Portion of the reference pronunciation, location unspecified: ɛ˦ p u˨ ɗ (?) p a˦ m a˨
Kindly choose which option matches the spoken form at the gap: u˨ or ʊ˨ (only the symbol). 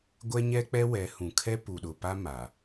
ʊ˨